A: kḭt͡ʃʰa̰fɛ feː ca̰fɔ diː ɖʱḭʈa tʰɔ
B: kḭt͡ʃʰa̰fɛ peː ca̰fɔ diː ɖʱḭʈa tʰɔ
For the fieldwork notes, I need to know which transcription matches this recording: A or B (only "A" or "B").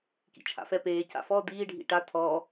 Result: B